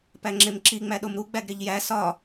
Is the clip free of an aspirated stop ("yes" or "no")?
yes